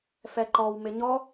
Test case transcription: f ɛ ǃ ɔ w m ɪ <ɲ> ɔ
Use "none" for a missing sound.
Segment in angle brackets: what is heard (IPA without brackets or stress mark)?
ɲ